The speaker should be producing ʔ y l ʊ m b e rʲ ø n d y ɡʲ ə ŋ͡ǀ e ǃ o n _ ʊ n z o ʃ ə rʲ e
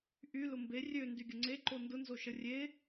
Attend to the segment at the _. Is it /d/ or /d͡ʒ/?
d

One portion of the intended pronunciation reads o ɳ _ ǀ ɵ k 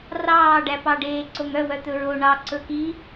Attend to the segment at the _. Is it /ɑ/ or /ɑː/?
ɑ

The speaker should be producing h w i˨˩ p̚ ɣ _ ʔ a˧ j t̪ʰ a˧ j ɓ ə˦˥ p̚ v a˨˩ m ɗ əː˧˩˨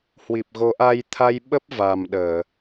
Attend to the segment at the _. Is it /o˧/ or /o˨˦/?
o˨˦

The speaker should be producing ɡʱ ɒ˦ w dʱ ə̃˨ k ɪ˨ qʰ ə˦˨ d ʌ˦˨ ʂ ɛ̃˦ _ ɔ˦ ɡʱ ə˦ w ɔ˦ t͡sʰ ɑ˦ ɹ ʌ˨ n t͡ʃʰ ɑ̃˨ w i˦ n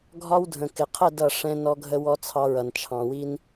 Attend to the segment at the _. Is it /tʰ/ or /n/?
n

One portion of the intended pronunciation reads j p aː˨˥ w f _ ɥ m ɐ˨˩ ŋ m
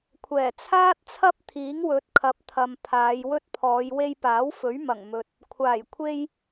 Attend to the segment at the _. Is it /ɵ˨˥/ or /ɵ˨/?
ɵ˨˥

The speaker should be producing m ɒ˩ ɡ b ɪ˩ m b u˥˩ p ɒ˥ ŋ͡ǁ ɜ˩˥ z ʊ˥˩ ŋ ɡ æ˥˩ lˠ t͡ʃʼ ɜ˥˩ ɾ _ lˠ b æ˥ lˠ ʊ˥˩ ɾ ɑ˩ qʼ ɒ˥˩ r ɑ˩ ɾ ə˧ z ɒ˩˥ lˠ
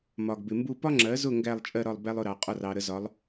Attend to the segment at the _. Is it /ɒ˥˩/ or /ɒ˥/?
ɒ˥˩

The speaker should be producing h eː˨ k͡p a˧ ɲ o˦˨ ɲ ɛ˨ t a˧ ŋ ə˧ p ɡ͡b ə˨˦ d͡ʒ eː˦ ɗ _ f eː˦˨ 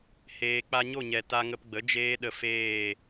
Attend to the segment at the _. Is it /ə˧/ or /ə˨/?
ə˧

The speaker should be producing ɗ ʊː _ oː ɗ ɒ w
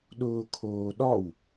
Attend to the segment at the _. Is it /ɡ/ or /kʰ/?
kʰ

